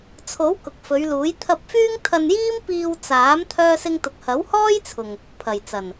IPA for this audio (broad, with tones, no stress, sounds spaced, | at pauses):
t͡sʰ o˨˥ w k ʊ˨ k̚ f ɵ˨˧ ɥ l uː˨˥ j t̪ʰ ɐ˧ p̚ f yː˥ ŋ t̪ʰ ɐ˧ n j iː˥ m p iː˧ w t͡s aː˨˥ m t̪ʰ œː˥ s ɪ˥ ŋ t̪ ʊ˧ k̚ h ɐ˨˥ w h ɔː˥ j t͡sʰ ʊ˨ ŋ | pʰ ɐ˨˩ j t͡s ɐ˨˩ n